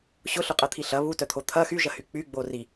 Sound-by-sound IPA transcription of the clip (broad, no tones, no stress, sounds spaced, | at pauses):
ɕ ʊ ɬ ʊ qʼ ɐ t̪ʰ i ɬ ɐ β u t œ t̪ʰ o t̪ʰ ɐ x y ʒ ɐ h y k͡p y ɡ͡b o r i